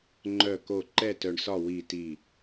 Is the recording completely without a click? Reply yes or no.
no